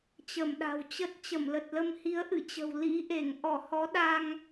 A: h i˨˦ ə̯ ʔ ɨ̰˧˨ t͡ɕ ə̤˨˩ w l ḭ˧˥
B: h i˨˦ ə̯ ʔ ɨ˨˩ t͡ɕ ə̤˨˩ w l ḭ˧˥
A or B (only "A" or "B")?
A